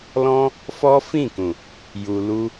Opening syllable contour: high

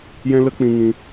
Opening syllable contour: high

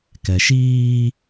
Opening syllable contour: low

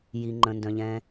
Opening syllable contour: low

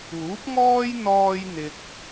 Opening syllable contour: rising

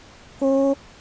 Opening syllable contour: high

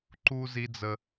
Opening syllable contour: high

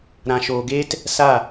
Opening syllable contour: low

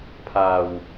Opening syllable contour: low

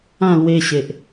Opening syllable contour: falling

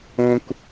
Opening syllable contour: high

